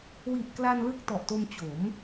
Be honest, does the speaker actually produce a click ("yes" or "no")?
no